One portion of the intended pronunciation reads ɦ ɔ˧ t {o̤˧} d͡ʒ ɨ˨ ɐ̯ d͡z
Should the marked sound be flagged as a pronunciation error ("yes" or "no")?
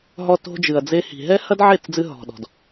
no